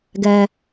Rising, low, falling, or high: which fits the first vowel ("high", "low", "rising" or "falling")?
low